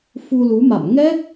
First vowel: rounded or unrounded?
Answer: rounded